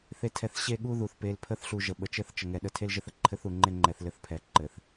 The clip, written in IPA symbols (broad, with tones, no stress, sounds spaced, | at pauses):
θ e˨ tʰ ɛ˨ θ ɕ e˦˨ ɠ u˦ ð u˨ θ p e˨˦ l pʰ ə˦ θ ɬ u˨ ʒ ə˨ ɓ ə˨ t͡ʃ ɘ˦ θ t͡ʃ ə˨ ŋ ɛ˨ ɗ ə˦˨ tʰ e˦ l ʒ ɘ˦ θ ə˦ ǃʰ ɘ˦ θ u˨ ŋ͡ǃ e˦ ŋ͡ǃ ɛ˨ θ l ɘ˦ θ pʰ ɛ˨ ǃ ɘ˨ θ